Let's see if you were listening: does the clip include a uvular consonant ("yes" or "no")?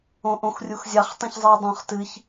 yes